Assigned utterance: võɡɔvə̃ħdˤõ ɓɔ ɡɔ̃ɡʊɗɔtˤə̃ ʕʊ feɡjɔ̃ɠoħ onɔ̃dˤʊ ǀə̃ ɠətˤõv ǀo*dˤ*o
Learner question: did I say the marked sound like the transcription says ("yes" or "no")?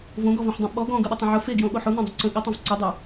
yes